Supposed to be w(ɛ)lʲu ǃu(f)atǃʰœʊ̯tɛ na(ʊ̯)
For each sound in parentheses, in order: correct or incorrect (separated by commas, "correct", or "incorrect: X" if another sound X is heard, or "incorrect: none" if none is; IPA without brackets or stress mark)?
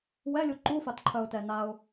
correct, correct, correct